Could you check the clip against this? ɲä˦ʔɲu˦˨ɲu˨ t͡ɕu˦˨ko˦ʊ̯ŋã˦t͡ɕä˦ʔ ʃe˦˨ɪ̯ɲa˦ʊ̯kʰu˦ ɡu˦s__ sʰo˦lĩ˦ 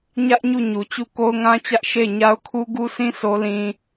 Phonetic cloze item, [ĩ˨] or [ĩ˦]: ĩ˦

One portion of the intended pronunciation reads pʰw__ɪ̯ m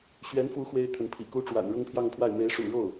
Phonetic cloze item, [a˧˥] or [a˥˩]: a˥˩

